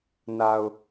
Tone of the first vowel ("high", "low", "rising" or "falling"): low